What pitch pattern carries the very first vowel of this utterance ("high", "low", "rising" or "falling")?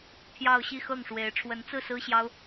falling